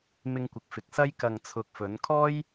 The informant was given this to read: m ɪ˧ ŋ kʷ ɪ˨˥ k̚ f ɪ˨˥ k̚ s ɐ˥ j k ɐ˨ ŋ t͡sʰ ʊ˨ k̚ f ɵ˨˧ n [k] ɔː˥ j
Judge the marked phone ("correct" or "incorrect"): incorrect